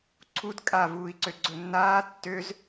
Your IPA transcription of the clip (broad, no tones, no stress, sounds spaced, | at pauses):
ǀʰ u d kʼ a v uː i̯ ǀ ø ɡ͡ǀ ɵ nː aː tː ø z